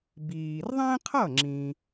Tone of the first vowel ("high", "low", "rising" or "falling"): low